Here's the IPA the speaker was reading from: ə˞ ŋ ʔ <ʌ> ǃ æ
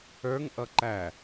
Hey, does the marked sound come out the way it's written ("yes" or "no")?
yes